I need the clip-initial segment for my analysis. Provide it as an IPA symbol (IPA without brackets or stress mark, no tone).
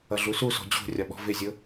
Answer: ʌ